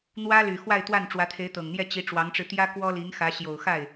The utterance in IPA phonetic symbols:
n̪ w ä˥ l y˨˩ x w a˥˧ ɪ̯ t̪ w a˥˩ n ʈ͡ʂ w ä˧˥ t̪ʰ e˧˥ ɪ̯ t̪ ɤ˨˩ ŋ n̪ j ɛ˥˩ t͡ɕ i˧˥ ʈ͡ʂ w ɑ˧˥ ŋ ʈ͡ʂ ɻ̩˧ t̪ j ä˥ k w ɔ˥ l i˧˥ ŋ x ä˧˥ ɕ j o˨˩ ʊ̯ x a˥˩ ɪ̯

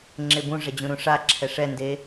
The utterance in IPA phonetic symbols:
ŋ͡ǁ e b ũ ʐ ɛ d͡ʑ ũ ɾ ũ ʂ a ǁʰ ɛ ʂ ɛ n d e

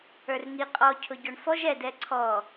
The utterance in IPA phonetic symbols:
ə˞ r ŋ i qʼ ɔ cʰ ʊ ɟ ɔ ɳ f ɔ ʒ ɛ d ɛ ǀʰ ɔ

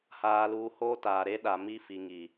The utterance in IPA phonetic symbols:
h aː˨ l uː˨ h oː˦ t aː˨ ɾ e˦ ɗ a˨ m i˦ f i˨ ŋ i˨

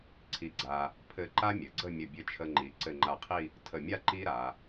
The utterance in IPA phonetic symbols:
ǀʰ i˧ ɡ͡ǀ a˧ | pʰ ɘ˧˩ ǃ a˥ mʲ ɘ˩˧ ɡ͡ǀ ə˥˧ mʲ ə˧˩ bʲ ɘ˧ t͡ʃʰ ə˧ ŋ͡ǃ i˩˧ ǀ ɘ˧˩ ŋ͡ǃ a˧˩ qʰ i˥˧ | tʰ ə˧˩ mʲ a˥˧ ǃ i˥ ɾ a˩˧

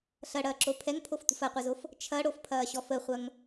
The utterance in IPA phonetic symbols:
ɬ ɐ ɽ ɐː ǁ o pʰ ɛ ŋ pʰ o f tʷ ə̤ f ɐ qʷ ɐ z o f | t͡ʃʰ ɐ ɽ o f pʰ ɐː ɕ ɔ f ə χʷ ɐ ŋ

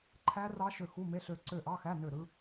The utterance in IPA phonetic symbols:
ǃʰ æ˦˥ r ɑ˦˥ ʃ ø˦˨ x u˧˥˧ m e˧˥˧ ɬ ø˦˨ ǀ ø˦˨ ʔ ɑ˧˥˧ x æ˧˥˧ n ø˦˨ ɾ ɯ˦˥

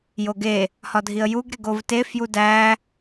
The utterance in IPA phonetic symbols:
j o ɡ e | h ɒ dʱ i ə̯ j u ɡ ɾ e ɡ o v t e f j u d æ

